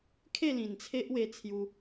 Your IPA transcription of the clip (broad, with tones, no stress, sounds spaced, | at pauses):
kʰ e˥˧ l ĩ˨˩ n t͡sʰ e˦ ʔ w e˧ t͡sʰ j u˧